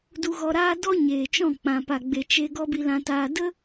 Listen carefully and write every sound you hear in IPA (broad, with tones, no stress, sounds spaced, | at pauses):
d u˧ ɣ ɔ˧ ɾ aː˦ d ɔ˦ ɲ eː˨ t͡ʃ ɔ̃˦˨ k͡p ã˨ p a˨ ɡ͡b e˨ t͡ʃ e˧ ɡ ɔ˦ b i˧ l ã˧ t aː˧ d ə˦